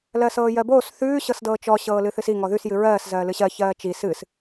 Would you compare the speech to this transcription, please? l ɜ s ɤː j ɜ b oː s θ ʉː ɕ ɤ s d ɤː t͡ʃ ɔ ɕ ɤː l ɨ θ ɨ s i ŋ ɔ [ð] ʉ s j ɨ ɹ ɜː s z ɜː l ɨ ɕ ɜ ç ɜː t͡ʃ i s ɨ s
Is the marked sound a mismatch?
no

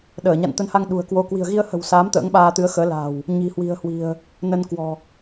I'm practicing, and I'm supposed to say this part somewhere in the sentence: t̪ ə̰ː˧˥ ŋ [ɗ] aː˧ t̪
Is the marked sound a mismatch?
yes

